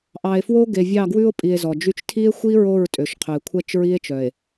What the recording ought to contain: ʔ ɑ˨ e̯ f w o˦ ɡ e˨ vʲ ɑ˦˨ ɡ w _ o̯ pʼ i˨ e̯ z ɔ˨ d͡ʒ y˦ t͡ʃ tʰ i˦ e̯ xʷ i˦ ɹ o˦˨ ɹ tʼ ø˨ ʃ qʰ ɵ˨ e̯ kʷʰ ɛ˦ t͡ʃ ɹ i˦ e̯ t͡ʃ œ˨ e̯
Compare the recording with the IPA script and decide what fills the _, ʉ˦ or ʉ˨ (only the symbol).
ʉ˦